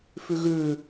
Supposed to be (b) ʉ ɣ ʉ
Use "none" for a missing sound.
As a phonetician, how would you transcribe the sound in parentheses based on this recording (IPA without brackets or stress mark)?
f